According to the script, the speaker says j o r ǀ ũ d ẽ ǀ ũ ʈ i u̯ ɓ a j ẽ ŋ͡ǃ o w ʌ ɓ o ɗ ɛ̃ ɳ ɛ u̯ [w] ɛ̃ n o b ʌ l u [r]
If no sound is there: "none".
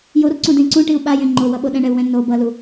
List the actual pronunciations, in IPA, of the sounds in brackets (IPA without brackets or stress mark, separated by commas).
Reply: w, none